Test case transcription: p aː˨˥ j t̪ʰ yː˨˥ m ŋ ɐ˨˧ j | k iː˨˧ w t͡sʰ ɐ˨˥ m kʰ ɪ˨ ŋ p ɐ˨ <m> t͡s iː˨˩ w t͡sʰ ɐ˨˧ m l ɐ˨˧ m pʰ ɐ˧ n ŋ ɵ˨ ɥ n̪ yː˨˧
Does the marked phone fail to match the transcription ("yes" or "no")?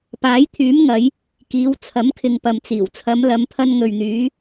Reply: no